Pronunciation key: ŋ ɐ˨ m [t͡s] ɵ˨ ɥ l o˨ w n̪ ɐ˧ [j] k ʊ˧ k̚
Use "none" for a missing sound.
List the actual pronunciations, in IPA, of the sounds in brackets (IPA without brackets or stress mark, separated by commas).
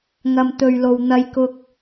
t̪, j